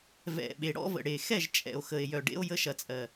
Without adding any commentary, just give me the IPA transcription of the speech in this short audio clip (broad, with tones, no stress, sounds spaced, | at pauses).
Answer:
v ɛ̰˨ ɓ e˨ ɽ ɔ̰˦ v ə̰˨ ɽ e˨ x ɛ˦˨ ʒ t͡ʃʼ ɛ̰˨ o̯ x ə˨ e̯ j œ˨ ɖ ḛ˧ o̯ j ə˧ ʃ ɐ˨ t͡sʼ ɜ˨